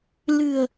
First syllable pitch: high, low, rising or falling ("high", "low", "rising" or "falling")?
low